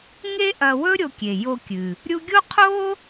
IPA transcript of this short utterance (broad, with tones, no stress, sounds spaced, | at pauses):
ŋ e˥ ʔ ɐ˧ w ɵ˥ ɾʲ o˧ kʲ e˩ j o˧ kʲ ɨ˩ | ɾʲ u˥ ɡʲ o˥ qʰ o˥